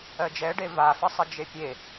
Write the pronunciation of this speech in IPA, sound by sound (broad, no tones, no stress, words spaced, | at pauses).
ɜd͡ʒɛɖe vafə sˤəd͡ʒepʲe